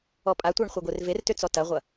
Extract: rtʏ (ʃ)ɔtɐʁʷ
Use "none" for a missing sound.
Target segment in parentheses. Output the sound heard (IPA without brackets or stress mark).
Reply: t͡s